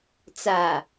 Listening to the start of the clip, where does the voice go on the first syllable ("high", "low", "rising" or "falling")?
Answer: low